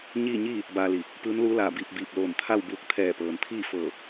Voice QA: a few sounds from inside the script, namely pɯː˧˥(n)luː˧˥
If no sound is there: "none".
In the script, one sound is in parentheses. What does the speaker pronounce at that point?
n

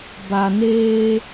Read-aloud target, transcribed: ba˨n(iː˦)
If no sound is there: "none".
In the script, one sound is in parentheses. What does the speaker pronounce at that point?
eː˦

